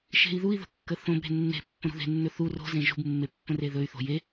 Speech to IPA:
ʃe̤i̯ðui̯ðə̤ kːəθõbɾe̤ nːe̤ pːə̃ɾṳðe̤nːɵ θu ro̤zẽ ʒṳbmːe pːə̃reðɵy̯θo̤ je

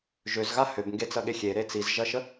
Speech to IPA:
ʒøzɣa høbŋɡet͡sɐɠe xʲeɾe t͡sizʒɐʃə

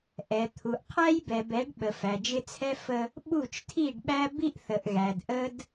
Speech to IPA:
ʔɛ˨ t̪ʰu˨ʔqʰæ˦jbɛ˨bɛ˨˦ɖ ɓə˨fæ˨d͡ʒɪ˦t͡sʰɛ˦ fə˦ | ɓu˦˨t͡ʃtʰi˦˨ɖɓæ˦bi˦ʔ θə˨ʔɣæ˨dʔə˦d

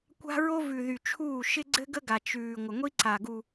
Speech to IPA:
kʷa̤˦ ɹo˦vʉ˨ðy˨t͡ʃʰuː˦˨ ʃɪ˦ɡ͡ǀɘ˦ɡə˦ɡa˨ t͡ʃʉː˨ ŋʷə˨ŋʷi˦ǀa˨ɡu˨

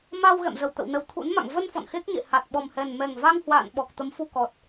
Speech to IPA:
ma˧w ɣɛ̰˧˨mzə˧˩wt̪ə̰˧˨w nə˨˩wt̪ʰṵ˧˥nma̰˧˨ŋ və˧n fɔ̰˧˨nxe˦˥k̚ɲḛ˧˨ ha˨˩t̚ɓɔ˨˩mhɛ˨˩n mɛ˨˩ŋ va˧ŋhwa̰ː˧˨n ɓɔ˨˩k̚t̪ə˨˦m fu˧kɔ˨˩t̚

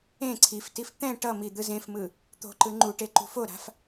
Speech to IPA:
ẽ ǀʰiftif t̪ɛ̃ ʈʌmi d̪ɯzẽfmɯ | t̪o̤ǃɯ ŋ͡ǃuʈe ǃṳfoɾa̤f

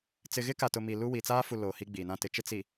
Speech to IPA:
t͡sɪ˨ɣɪ˦ka˨tʊ˨ mi˨lu˦wi˨ t͡saː˦fu˨ loː˨ hi˦ ɡ͡bi˨nã˦tɪ˨˦t͡ʃɪ˦ t͡si˨

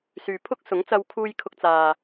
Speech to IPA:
syː˨pʰʊ˥k̚sʊ˨˥ŋt͡sɐ˧w kʰuː˥j kʰʊ˧k̚t͡saː˨

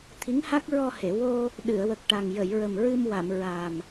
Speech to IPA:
t̪ʰi˧˥ŋha˦˥k̚ɹɔ˧he˨˩˨ wo˧ | ɗɨ˨˩˨ə̯wə˨˩k̚ʈa˨˩ŋ jə˨˩˨jɹə˨˩mɹɨ˧mwa˨˩˨m ɹa˨˩m

